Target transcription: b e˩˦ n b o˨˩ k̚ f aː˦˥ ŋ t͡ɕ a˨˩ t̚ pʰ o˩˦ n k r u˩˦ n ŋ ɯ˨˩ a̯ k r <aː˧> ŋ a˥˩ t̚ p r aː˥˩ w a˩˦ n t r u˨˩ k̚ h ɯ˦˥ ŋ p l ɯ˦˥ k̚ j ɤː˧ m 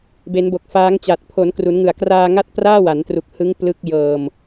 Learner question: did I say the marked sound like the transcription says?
yes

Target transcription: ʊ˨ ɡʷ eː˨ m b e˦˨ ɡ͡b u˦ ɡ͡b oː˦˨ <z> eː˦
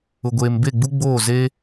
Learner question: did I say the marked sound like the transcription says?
yes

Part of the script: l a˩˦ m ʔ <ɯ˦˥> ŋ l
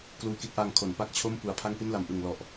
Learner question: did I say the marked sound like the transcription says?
no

